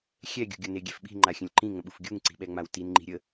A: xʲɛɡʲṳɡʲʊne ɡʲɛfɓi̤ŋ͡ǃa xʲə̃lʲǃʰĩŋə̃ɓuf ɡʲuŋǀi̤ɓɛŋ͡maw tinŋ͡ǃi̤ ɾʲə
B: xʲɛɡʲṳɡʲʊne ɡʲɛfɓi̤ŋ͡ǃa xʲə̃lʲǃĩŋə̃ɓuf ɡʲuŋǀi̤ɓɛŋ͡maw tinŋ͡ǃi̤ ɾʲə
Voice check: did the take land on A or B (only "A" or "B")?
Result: B